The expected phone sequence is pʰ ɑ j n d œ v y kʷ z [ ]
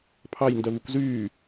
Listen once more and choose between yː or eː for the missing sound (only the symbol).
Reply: yː